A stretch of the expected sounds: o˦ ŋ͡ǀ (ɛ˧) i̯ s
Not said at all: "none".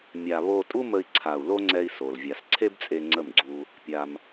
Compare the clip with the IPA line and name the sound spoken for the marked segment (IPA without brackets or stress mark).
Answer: ɛ˧